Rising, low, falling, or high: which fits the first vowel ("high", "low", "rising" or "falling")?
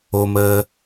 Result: low